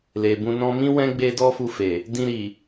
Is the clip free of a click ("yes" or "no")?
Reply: yes